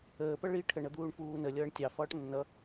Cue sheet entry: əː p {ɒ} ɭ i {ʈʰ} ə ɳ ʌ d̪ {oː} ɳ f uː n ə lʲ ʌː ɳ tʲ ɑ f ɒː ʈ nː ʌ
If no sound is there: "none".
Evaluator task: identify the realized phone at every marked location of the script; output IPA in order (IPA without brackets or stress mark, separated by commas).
ʌ, ʈʰ, uː